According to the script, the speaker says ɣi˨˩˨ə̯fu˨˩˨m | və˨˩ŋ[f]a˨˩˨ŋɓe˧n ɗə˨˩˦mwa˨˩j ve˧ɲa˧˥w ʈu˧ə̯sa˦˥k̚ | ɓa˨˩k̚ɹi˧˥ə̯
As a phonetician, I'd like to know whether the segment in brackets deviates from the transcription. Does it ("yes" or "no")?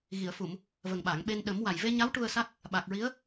yes